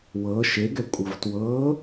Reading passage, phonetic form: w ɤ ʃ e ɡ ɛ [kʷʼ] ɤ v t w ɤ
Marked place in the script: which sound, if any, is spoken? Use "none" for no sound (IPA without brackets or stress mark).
kʷʼ